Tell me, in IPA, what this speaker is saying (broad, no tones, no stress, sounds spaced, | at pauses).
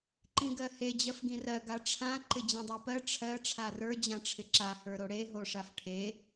ǃ ĩ ɡ ɜ h e d͡ʑ ɜ f ɡ ĩ r ɜ ɡ a ʈ͡ʂʰ ã ǃ ɪ d͡ʑ ĩ dˤ ɜ p ɜ ʈ͡ʂʰ ɜ ʈ͡ʂʰ a r ə˞ d͡ʑ ã ʈ͡ʂʰ ɪ ǁ a h ə˞ ɾ o ɽ e ɦ o ʂ a f ʈʰ e